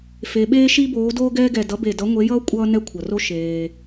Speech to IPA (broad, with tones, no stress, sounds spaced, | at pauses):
f e˩˧ ɓ eː˥ ʃ i˥ b oː˨˥ d oː˥ ɡ ɛː˥ ɡ ɛ˧˩ d ʌ˨˥ b e˧˩ d ʌ˨˥ ŋʷ e˨˥ j ʌː˥ kʷʼ ʌː˥ n ɛ˥ kʷʰ ʌ˩ r o˥ ʃ eː˩